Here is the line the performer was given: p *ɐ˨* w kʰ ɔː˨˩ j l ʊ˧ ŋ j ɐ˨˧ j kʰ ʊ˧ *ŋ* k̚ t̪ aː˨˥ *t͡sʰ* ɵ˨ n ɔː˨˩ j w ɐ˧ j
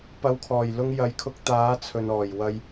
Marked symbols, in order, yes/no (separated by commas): no, no, yes